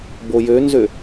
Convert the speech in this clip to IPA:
bojønzø

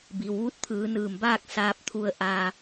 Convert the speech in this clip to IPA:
bi˩w ʋu˧˥t̚t̪ʰɯː˩˧nɯː˧˩mbaː˥˨k̚ saː˧p̚t̪ʰu˧ə̯ ʔaː˧

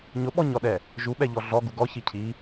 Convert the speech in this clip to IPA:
ɲʊɓɔɲɔɗɛ | ʒuɓɛʎɔ ɮɔɡu ɡɔçi cʰi

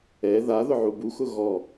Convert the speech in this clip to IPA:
ɛ ða ðʊʕubu xʊɣɔ

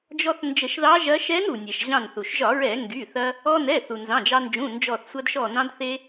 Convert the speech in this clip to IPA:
d͡ʒɔ˧θ nd͡ʒə˧˩˧ʃðɑ˧˥ʒɐ˧˥ ʃɛ˧˥nɾu˩nʲɛ˩ʃ ʑɑ̃˧˩nθu˩ʃʒɒ˧˩˧ ɹɛ˧˩˧ŋɡy˩˧˩θɐ˧ | ɔ˧nɛ˩˧˩ θu˩nzɑ̃˩˧˩d͡ʒɑ˧nd͡ʒũ˩˧˩ nd͡ʒɔ˧˩θsʷɐ˧dʃɔ˧˩ nɑ̃˧dθe˧

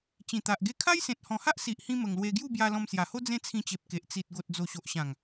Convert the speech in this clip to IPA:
t͡ɕĩ˨˩t̪a˨ʔɡe˥˧ kʰa˦jsẽ˨t̚hɔ̃˨˩ha˦ʔ si˨ʔhĩ˧ mə˨˩ŋlwe˧ɡju˥˧bja˧ lɔ̃˧msja˨˩ho˦ d͡zẽ˦t͡sʰĩ˧t͡ɕe˨p̚ ke˨ʔ t͡si˨t̚ ɡo˨t̚d͡zo˨˩ɕo˨ʔɕã˨˩ŋ

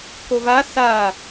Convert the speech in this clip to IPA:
kova sa

